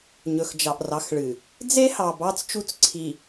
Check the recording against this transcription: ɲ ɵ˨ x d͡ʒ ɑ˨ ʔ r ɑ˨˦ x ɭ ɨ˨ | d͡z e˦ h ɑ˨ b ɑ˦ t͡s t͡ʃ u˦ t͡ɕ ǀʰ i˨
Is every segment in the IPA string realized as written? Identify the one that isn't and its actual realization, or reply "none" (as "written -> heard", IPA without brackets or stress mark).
t͡ɕ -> t͡s